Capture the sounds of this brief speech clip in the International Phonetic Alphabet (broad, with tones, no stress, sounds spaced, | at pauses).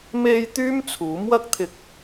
m e˧ j t̪ yː˥ m t͡sʰ uː˨˥ m w ɐ˥ k̚ t̪ʰ ɪ˧ k̚